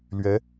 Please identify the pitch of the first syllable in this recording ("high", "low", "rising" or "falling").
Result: rising